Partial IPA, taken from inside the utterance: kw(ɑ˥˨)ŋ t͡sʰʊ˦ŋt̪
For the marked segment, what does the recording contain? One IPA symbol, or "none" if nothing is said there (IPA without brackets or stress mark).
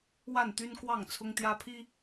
ɑ˥˨